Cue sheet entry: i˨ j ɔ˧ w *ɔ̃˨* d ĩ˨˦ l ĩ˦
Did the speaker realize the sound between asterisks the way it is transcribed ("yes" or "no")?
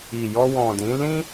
yes